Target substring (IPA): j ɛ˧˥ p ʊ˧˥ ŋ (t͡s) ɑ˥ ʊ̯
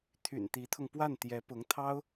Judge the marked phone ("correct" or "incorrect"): incorrect